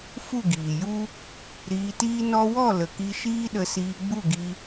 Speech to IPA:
f u˦˨ ɡ iː˨ j u˦ | ɾ iː˧ t iː˦ n ɔ˦ w ɔ˦˨ l ə˨ k i˧ ʃ iː˦ ɗ ə˧ s iː˧ ɡ͡b u˦˨ ɡ i˧

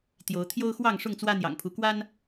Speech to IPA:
t̪ j o˨˦ ʊ̯ t̪ʰ j o˦ ʊ̯ x w ɑ˥˨ ŋ ʂ ʊ˥˨ ŋ t͡s w ä˦ n̪ j ɑ̰˨˩ ŋ pʰ u˨˦ k w a˦ n

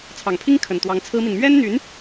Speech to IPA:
t͡sʰ ɑ˨˩ ŋ pʰ i˥ ŋ kʰ ə˨˩ n t̪ w ɑ˧˥ ŋ t͡sʰ ɹ̩˥ m i˨ n m ɥ ɛ˥ n n̪ y˧˥ n

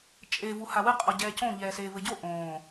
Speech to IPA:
t͡ʃʼ e v u h a w ɨ qʼ ɔ ɟ ɛː c õ ʎ ɛː s eː v ɘ ɟ o ʔ õː

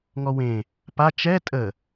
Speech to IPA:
ŋ ɔ w ẽ | p a t͡ʃ ɛ tʼ ə

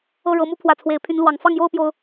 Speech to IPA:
ɤ˥˨ ɻ ɤ˨˦ m u˦ pʰ w ä˨˦ t͡sʰ w e˨˦ ɪ̯ pʰ y˨˦ n l w ɑ˨˩ ŋ f ɑ˥˨ ŋ j o˥˨ ʊ̯ p j o˨˦ ʊ̯

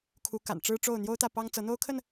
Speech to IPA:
kʰ u˨˦ k a̰˨˩ n ʈ͡ʂ ɻ̩˦ ʈ͡ʂ o˥˨ ʊ̯ n̪ j o˦ ʊ̯ t̪ ä˥˨ p ɑ˦ ŋ t͡s ɤ˨˦ n̪ o˦ ʊ̯ kʰ ə˥˨ n

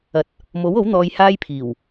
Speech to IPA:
ɐ˨˥ t̚ | m o˨˥ w o˨˥ w n̪ ɔː˧ j h aː˥ j pʰ iː˨˩ w

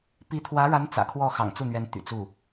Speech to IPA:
p i˧˥ t̪ʰ w ä˧˥ ɻ a˧˥ n t͡s ä̰˨˩ kʰ w ɔ˥˩ x ɑ̰˨˩ ŋ t͡s u˥˩ n̪ ɥ ɛ˧˥ n t̪ y̰˨˩ t͡s u˥˩

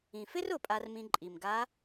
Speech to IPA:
ĩ˩ f ɪ˥ r ʊ˩˧ pʼ a˧ r m ĩ˧ ǃʼ i˩ m ɡ a˧˥

